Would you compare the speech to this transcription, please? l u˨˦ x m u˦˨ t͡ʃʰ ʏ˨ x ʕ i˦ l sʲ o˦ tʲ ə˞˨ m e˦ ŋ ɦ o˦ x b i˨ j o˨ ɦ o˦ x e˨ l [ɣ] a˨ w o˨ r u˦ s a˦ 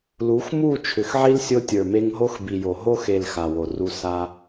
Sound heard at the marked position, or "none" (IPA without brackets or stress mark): x